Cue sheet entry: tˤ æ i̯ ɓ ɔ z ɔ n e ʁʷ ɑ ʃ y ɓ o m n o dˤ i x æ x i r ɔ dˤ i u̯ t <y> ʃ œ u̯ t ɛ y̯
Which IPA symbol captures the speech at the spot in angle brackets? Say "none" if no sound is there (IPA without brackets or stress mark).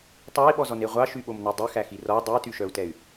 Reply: y